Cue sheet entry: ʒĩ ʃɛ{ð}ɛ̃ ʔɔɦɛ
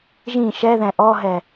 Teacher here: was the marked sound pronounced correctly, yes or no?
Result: yes